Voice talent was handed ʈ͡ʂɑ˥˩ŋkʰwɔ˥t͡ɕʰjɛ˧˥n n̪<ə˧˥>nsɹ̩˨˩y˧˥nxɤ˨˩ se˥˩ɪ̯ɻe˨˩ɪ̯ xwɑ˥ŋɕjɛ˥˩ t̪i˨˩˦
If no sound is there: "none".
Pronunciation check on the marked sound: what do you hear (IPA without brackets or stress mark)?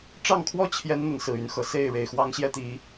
ə˧˥